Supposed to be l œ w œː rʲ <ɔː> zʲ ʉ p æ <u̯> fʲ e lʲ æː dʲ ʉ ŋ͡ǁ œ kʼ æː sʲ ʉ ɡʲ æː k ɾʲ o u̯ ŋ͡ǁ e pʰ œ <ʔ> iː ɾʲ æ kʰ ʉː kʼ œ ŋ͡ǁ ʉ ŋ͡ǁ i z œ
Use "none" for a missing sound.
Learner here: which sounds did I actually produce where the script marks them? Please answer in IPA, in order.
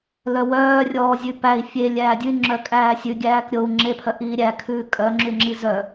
ɔː, i̯, ʔ

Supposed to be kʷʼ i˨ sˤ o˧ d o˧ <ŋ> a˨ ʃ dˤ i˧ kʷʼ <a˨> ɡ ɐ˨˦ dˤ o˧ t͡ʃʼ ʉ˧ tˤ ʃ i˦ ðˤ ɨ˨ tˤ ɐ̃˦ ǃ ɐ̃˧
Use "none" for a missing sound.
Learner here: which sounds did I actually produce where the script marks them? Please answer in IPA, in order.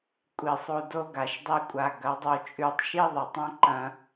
ɡ, a˨

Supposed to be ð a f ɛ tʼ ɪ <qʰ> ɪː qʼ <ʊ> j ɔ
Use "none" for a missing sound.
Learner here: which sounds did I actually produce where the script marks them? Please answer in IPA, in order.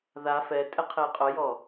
qʰ, ʊ

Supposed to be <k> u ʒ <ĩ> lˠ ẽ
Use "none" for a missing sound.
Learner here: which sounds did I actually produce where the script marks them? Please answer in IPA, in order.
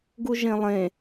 ɡ, ẽ

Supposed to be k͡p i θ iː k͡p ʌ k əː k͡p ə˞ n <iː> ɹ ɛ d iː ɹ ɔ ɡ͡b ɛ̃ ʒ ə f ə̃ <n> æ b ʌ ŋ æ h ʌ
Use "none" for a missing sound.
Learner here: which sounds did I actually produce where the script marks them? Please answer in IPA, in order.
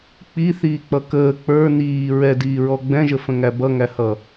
iː, ŋ

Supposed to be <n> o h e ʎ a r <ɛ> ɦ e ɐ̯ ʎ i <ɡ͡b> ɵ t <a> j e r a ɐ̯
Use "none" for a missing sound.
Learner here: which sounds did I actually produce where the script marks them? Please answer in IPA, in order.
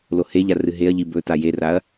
l, ɨ, b, a

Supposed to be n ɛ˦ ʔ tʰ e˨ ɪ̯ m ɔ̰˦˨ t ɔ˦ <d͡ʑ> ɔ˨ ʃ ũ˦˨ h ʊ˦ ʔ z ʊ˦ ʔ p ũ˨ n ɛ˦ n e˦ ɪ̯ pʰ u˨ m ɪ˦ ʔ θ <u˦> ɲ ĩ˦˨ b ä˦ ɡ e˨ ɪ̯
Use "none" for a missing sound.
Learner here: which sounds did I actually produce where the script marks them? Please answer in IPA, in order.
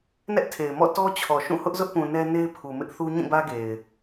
t͡ɕʰ, u˦

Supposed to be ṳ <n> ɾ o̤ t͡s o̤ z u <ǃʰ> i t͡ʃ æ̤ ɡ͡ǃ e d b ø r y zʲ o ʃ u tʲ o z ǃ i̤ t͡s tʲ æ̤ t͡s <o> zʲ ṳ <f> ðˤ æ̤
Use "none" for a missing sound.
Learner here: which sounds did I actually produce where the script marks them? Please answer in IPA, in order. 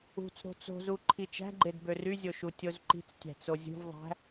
t͡s, ǃʰ, o, v

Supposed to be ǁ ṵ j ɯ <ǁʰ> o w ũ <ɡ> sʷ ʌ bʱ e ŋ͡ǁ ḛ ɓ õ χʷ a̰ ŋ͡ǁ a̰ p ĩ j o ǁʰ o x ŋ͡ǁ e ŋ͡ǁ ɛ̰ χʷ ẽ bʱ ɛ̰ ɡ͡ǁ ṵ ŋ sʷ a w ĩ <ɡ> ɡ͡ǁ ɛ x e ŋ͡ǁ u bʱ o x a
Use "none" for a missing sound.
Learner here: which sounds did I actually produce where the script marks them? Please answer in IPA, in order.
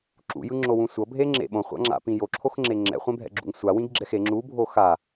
ŋ͡ǁ, none, ɡ

